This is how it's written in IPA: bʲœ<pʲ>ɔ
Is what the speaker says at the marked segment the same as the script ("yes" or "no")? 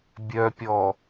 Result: yes